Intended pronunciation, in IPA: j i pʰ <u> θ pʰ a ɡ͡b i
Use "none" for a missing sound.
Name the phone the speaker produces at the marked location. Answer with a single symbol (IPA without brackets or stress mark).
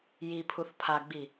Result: u